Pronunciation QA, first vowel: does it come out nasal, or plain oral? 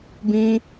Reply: nasal